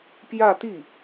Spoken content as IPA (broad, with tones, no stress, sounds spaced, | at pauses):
p j ä˥˧ t̪ i˥˩